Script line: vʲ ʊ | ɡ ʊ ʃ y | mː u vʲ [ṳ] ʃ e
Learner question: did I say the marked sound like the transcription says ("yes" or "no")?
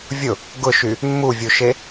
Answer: no